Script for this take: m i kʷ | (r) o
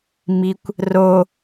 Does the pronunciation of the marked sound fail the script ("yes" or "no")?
no